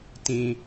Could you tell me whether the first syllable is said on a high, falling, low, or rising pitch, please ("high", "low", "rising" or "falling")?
low